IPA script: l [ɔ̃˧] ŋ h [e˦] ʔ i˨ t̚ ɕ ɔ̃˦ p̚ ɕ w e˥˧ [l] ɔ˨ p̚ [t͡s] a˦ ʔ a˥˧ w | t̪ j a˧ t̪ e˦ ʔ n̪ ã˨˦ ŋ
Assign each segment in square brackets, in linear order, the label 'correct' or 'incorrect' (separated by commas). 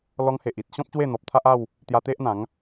incorrect, incorrect, incorrect, incorrect